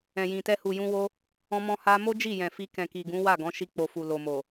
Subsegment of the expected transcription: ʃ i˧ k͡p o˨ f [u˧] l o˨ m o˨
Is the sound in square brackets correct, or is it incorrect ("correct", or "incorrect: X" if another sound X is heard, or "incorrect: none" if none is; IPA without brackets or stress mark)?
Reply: incorrect: u˨